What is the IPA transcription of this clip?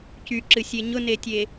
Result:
c y ǁ ɨ sʲ e ɲ ʊ n e tʲ e

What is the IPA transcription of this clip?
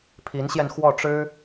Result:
pʰ i˧˥ n ɕ j ɛ˧ n x w ɔ˥˩ ʈ͡ʂ ɻ̩˥

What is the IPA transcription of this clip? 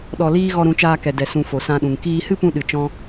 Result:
ɗ ɔ˧ l iː˦ ɣ ɔ˧ ɾ ũ˨˦ t͡ʃ aː˧ k ɛ˨ d ɛ˨ s ũ˨ f o˨ s ã˧ ɗ ũ˨ ŋ k iː˧ h ɨ˦ p ũ˧ ɗ ɨ˨ t͡ʃ ɔ̃˧

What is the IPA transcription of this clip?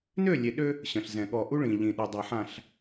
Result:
n ø˦˨ lʲ e˨ ɗ ø˦ | ɕ ə̃˨ ɬ z ɛ̃˨ ɠ ɔ˨ ʔ u˦ ɭ ĩ˨ ʎ ĩ˨ ɗ u˨ dˤ a˨ ħ ã˨ ɬ

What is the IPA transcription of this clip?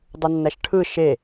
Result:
dˤ u nː æ ʃ ʈʰ ɯ ʃ e

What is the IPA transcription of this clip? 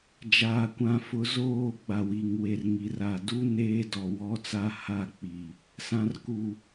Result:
d͡ʒ aː˨ kʷ ã˨ f ʊ˨˦ z oː˦˨ ɡ͡b a˨ w i˨ ŋ w e˨ r ŋ i˨ r a˨ d u˦ n eː˦ d ɔ˨ w ɔ˦ t͡s a˦ h a˦˨ k͡p i˨ | s ã˨ r k u˨

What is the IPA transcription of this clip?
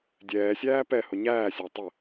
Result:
dʲ ɛː sʲ æː p ɛ h ʊ ɲ æː sʲ æ tˤ ə

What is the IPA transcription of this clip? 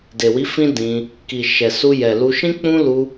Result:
d e˨ w i˨˦ f ĩ˦ d ĩ˧ | k i˨ ʃ ɛ˨ s u˧ j ɛ˨ l u˧ ʃ ĩ˦ k͡p ũ˦ l u˧

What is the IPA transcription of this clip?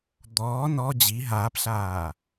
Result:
d̪ ɔː n ɔ d͡ʑ i ɦ aː p ɬ aː

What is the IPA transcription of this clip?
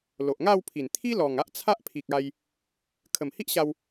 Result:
l o˨ ʔ ŋ a˥˧ w pʰ i˨˩ n t̪ʰ i˦ l ɔ˨˩ ŋ a˦ ʔ t͡sʰ a˦ ʔ pʰ i˨ k̚ a˧ j | kʰ ə˨˩ m h i˦ ʔ ɕ a˧ w

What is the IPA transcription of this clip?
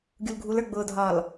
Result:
ɡʲ u l ɡʱ u l ə˞ ɡ͡b ʊː dʱ ɒː l

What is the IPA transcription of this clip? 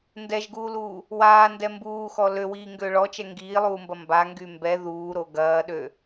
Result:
n d ɛ ʒ ɡ uː l uː | w aː n d ɛ m b uː x ɔ l ø w iː ŋ ɡ ø ɭ ɔ t͡ʃ ɛ ŋ ɡ iː lˠ uː m b ɐ m b a ŋ ɡ y m b ɛ ð uː ɾ o ɡ ɐː ɗ ø

